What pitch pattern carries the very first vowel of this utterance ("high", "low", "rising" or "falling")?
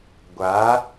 rising